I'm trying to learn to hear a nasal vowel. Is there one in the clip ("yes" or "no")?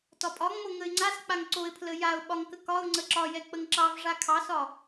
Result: no